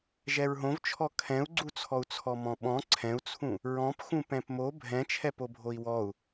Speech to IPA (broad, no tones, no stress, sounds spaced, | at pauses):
ʒ ɛ ɹ ɦ õ v t͡ʃʰ ɔ kʰ ɛ̃ u̯ ɡ͡ǀ u t͡sʰ ɔ u̯ t͡sʰ ɔ m ɔ̃ ɓ ɔ̃ ǀʰ ɛ̃ u̯ t͡sʰ ũ | ɹ ɔ̃ p x ũ p ɛ̃ p m o bʱ ɛ̃ t͡ʃʰ ɛ p o bʱ o i̯ w ɔ u̯